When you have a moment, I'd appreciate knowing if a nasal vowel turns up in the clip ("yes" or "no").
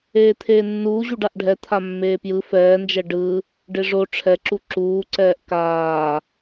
no